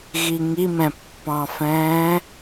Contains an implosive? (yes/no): no